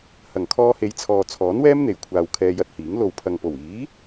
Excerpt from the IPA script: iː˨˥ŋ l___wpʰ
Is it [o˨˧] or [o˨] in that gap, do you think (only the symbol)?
o˨